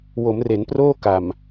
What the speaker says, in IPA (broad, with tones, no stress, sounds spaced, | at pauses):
w o˩˦ m r e˩˦ n p r oː˥˩ k a˨˩ m